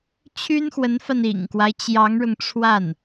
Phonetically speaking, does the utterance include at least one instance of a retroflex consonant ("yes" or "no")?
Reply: yes